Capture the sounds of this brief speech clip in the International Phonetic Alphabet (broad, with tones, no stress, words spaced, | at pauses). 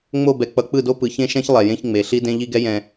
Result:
ŋ͡mo˦˨bɛ˨ k͡pʌ˨˦k͡pɯ˦˨do˦ pɯ˨çẽ˦ʃɛ̃˦ç lˠɛ˨jẽ˦ç ŋ͡me˨ɬi˦ dẽ˦ʎi˦ɡɛ˦ jɛ̃˨